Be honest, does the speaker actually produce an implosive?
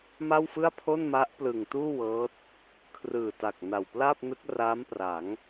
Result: no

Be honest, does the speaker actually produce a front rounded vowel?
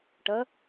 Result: no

